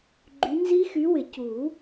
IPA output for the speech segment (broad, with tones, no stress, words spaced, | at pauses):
ɡ͡ǃy˨˦nzi˦˥xy˨˦wɪ˨˩˦ cu˨˩˦